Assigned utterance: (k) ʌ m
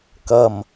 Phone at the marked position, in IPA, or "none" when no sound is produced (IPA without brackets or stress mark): k